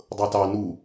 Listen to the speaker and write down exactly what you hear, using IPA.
dˤ ɤ t ɑ n u

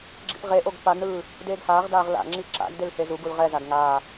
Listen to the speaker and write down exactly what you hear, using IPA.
ɡ͡ǁ ḭ p ʁ e ʔ o ɡ p a ɡ ɳ ɯː | d eː ɡ h aː ʁ d aː ʁ l a̰ ŋ͡ǁ i ǁ a̰ ɡ d e l h e z u ɡ u l ʁ ɛ z a ɡ ŋ aː

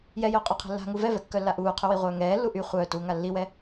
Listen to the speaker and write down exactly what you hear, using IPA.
j ɛ j œː qʼ œ qʰ ɛ̤ lː a̤ ŋ u v ɛ v ɛ kː œ lː a ʔ uː qʰ ʏ w i ʁʷ œː ŋ ɛː lː u ʔ y χʷ œː t uː ŋ a lː i w ɛ

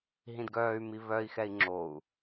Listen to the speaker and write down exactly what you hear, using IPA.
ɦ ĩ d ɡ œː y̯ m i β œ i̯ x ɛ i̯ ŋ͡ǁ o u̯

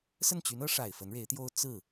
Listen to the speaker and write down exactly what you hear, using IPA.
s ə˥˩ n t͡ɕ y˧˥ n ɤ˧˥ ʂ a˨˩ ɪ̯ f ə˧˥ n ɻ e˧˥ ɪ̯ t̪ j o˥ ʊ̯ t͡s ɹ̩˥˩

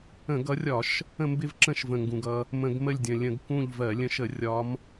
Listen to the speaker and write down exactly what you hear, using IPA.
ə̃˧˩˧ ɡ ʌ˨˦ rʲ ɒ˧˩˧ ʃ | ə̃˦˨ m b ɪ˦˨ v ǁ ə̃˦˨ ʃ v ə̃˩ ŋ ɡ ũ˩ ɡ ʌ˦ | m ə̃˧˩˧ ɡ m ə˦˨ lʲ dʲ ə̃˩ lʲ ə̃˧˩˧ ɡ k ũ˦˨ ʎ v ɜ˧˩˧ lʲ ə̃˨˦ ʃ ə˧˩˧ rʲ ɒ˨˦ m

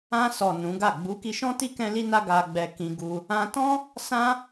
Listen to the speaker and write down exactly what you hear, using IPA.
ã˧ s ɔ˨ n ũ˨˦ ɡ a˦˨ ɡ͡b u˨˦ k i˧ ʃ ɔ̃˦ t i˦ k ɛ̃˦ l i˦ n a˦ ɡ a˧ ɡ͡b ɛ˧ k ĩ˧ ɡ u˧ | ã˧ t ɔ̃˦ | s ã˦

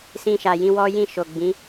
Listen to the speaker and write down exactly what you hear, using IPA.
s ĩ˧ ʃ a˨ j ĩ˧ w ɔ˦ j ĩ˦˨ ʃ o˨ ɡ͡b ĩ˨˦

